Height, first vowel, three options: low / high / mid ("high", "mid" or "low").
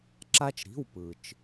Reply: low